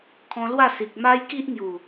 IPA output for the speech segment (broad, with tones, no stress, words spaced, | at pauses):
kʰɔ̃˧lwa˥˧ si˨k̚ma˦j ki˦ʔŋju˨˩